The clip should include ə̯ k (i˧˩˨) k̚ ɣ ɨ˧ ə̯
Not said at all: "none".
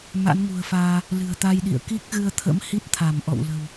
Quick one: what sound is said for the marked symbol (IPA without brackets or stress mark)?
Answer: i˦˥